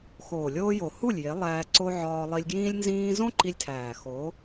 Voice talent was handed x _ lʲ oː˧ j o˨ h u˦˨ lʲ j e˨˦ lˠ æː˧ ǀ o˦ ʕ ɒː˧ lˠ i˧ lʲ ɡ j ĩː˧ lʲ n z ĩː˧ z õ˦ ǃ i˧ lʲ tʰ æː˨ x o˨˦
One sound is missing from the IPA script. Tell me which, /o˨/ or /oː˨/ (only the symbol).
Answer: oː˨